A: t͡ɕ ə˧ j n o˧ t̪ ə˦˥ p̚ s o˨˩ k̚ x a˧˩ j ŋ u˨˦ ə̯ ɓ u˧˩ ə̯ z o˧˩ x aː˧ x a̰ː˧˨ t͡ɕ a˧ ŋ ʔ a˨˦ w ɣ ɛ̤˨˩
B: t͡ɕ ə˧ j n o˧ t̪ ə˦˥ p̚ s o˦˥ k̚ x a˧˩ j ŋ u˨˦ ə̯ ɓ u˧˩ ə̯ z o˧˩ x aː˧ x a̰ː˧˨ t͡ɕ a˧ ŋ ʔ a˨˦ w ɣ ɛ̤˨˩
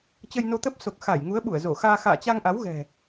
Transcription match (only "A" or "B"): A